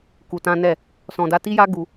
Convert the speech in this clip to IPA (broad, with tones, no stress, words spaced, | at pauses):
ku˧tã˦nɛ˦˨ | sɔ̃˧da˦ ti˦ja˦ ɡu˧